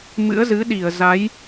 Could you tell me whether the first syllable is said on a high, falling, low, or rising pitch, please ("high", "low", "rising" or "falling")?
rising